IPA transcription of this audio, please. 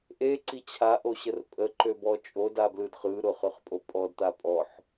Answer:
ʔ e ǀ i t͡ɕʰ a ʔ o ɕ ə r pʼ ə ǃ ø b ɔ t͡ʃʼ o d a b l ɯ d χ ɯ ɾ ʊ χ ø χ pʼ o pʼ ɔ d t̪ a pʼ ɔ ħ

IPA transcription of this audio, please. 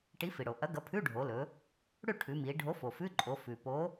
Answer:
ʈ i˨˥ f i˩ ɽ o˩ ʔ ɐ˨˥ ɡ ɐ˨˥ pʰ ʉ˧˥˧ ɖʱ o˩˧ l ɵ˩˧ | ɽ ʉ˥˩ ʈʰ ʉ˩˧ m i˩˧ ɖʱ o˨˥ f o˩ f ʉ˧˥˧ ǃʼ o˩˧ f ʉ˩ p o˨˥

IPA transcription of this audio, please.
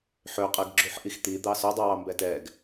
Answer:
ħ ø qʼ ɛ ɡ ɡ͡ǁ u ħ ʔ i x t̪ i d̪ ɑ s ɵ dˤ ʉ w ɑ m b ɛ t ɛ ɡ

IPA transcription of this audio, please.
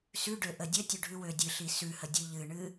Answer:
s ʉ ɖ ø ʔ ə dʲ ə tʲ ø ɖʱ ʉ w ø dʲ ɨ ɬ i s ʉ h ə dʲ ɨ ʎ ɨ ɳ ɨ

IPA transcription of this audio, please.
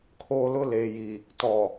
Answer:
kʰ oː˨ l ʊ˦˨ l eː˨ j i˨ | t ɔ˨

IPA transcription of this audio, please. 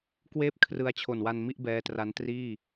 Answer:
k w eː˥˩ p̚ kʰ r ɯ˧ a̯ t͡ɕʰ o˨˩ n w a˧ n m i˥˩ ʔ b ɛː˦˥ t r a˦˥ n t r iː˥˩

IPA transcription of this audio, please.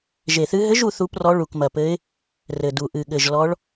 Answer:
ʒ e˨˩ θ ɨ˧˥ ɦ ɘ˧˥ ʒ u˧˥ θ u˧˥ p r ɔ˧˥ ɭ u˨˩ k m ɐ˨˩ p ɘ˧˥ ɪ̯ | r ɘ˨˩ d u˨˩ ʔ ɨ˨˩ ɠ ɘ˨˩ ʒ l ɔ˧˥ ɭ

